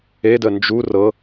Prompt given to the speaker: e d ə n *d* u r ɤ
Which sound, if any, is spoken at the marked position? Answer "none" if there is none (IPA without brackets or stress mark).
d͡ʒ